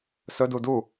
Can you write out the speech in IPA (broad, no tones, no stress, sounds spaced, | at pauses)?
s ɵ d u d u